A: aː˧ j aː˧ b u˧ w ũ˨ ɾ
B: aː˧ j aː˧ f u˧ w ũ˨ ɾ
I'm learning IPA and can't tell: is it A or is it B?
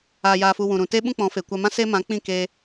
B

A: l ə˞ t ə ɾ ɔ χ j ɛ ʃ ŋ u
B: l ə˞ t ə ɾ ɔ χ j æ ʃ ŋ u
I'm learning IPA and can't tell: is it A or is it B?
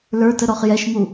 A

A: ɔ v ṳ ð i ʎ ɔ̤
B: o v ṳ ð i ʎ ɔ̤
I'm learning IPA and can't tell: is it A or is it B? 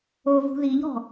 B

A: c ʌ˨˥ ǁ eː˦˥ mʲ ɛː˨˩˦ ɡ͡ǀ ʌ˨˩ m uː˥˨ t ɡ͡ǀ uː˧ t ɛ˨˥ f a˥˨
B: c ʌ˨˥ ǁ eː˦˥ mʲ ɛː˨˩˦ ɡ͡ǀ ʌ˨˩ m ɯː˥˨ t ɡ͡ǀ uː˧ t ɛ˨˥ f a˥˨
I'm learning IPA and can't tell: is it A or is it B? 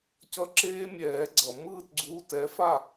B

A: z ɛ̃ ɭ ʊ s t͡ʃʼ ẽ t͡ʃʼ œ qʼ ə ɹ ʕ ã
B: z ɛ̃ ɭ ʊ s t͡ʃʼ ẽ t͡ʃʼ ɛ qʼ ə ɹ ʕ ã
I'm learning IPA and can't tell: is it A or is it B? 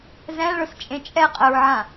B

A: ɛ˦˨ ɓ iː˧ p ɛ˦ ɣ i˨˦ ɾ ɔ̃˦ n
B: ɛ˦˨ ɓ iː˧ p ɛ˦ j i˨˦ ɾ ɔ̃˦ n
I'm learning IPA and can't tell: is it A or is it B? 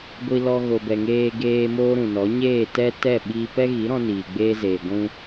A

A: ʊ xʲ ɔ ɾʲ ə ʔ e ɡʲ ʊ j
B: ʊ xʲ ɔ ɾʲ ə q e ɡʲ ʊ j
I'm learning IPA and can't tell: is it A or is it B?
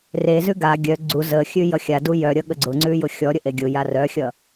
A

